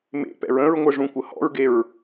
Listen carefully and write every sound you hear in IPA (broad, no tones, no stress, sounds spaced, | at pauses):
m ḛ p ɛ̰ ɹ ə̃ ɹ ŋʷ ɘ ʐ ũ kʷ ə h ɔ̰ ɹ ɡ e ɹ